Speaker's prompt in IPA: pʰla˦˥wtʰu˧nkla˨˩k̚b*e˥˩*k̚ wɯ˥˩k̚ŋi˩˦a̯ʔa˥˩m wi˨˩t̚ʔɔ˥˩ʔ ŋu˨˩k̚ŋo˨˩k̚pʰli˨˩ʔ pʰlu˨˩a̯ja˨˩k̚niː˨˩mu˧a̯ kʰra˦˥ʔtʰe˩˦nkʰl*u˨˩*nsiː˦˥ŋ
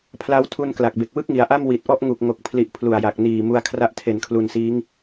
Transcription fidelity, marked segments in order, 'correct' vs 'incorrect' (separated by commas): incorrect, correct